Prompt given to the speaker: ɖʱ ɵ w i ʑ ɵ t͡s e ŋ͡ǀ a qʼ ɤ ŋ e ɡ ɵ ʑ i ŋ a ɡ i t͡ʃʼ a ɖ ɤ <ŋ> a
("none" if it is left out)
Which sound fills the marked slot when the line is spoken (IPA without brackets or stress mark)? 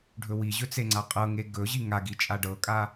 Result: kʼ